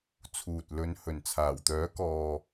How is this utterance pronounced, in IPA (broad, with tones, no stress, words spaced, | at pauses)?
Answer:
t͡sʰuː˨t̚lɵ˨˧n hɵ˨˩nt͡sʰaː˨˩wt̪œː˨˥kɔː˨